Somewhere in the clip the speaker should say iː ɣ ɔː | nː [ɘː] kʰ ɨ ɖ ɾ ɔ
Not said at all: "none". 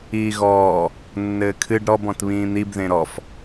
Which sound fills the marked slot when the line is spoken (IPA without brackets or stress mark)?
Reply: ɘː